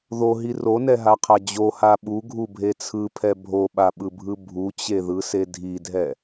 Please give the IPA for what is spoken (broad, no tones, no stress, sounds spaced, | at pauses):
ð o ɦ i r o n ɛ ɦ a qʰ a d͡ʑ o h a ɓ u ɡʱ u bʱ e t͡sʰ ɯ pʰ ɛ bʱ o ɓ a ɓ ɯ bʱ ɯ bʱ u t͡ɕ e ð ɯ s e dʱ i dʱ ɛ